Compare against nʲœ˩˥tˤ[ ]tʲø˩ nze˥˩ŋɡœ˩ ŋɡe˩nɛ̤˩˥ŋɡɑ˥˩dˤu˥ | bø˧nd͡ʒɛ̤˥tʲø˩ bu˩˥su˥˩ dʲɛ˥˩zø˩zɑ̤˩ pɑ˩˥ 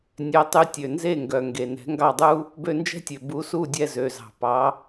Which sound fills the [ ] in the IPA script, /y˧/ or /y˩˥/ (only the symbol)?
y˧